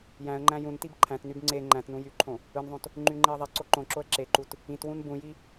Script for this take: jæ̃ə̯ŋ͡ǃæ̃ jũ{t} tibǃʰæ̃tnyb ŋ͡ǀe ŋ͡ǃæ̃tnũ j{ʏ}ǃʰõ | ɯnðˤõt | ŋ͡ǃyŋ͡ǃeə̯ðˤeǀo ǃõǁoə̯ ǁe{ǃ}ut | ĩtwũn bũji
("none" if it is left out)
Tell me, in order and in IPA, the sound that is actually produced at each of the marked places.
n, y, ǃ

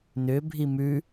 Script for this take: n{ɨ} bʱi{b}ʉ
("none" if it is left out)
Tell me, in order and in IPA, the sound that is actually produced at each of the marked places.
ʏ, m

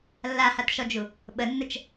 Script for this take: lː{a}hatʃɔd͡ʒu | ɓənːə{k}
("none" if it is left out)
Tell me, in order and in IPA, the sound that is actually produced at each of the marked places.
a, t͡ʃ

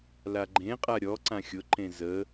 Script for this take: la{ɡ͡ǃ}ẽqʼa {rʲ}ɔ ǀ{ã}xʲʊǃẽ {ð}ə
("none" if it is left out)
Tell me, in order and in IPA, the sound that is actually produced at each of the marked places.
ɡ͡ǃ, ɾʲ, ã, z

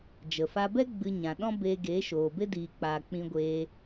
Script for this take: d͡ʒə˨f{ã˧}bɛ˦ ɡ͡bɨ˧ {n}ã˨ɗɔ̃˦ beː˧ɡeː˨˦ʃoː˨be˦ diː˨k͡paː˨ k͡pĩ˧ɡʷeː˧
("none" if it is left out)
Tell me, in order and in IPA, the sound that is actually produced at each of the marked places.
a˧, ɲ

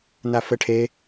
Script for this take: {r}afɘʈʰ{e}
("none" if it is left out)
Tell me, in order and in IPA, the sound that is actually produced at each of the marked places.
n, e

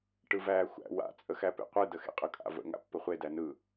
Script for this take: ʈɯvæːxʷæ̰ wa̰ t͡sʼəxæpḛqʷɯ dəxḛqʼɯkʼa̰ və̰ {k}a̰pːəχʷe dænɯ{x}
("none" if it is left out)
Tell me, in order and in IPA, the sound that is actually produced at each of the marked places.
ŋ, none

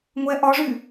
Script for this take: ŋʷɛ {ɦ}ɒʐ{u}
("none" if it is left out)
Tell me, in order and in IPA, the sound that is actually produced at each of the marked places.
ʔ, y

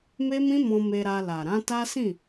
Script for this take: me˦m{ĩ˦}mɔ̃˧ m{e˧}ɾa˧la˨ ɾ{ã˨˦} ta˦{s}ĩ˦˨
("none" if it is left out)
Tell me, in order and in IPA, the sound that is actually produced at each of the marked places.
ĩ˦, e˧, ã˨˦, s

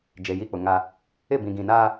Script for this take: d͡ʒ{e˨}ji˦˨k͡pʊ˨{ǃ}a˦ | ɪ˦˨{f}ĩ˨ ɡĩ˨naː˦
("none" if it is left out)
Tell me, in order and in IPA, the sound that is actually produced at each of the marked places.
e˨, ŋ, b

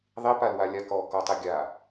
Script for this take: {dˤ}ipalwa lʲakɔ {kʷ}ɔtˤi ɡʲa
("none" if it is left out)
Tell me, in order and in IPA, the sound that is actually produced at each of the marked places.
ðˤ, k

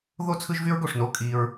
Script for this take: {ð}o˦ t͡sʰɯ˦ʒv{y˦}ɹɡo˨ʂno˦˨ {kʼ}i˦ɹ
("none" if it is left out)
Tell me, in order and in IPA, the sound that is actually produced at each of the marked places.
ð, y˦, kʼ

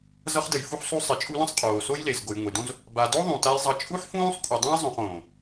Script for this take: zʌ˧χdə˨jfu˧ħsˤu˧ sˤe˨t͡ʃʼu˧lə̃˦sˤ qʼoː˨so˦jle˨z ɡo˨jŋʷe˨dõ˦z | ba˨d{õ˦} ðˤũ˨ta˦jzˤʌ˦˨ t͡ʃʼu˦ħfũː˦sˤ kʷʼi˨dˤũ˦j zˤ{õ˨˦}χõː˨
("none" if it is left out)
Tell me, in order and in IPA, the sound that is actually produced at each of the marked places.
o˦, õ˧

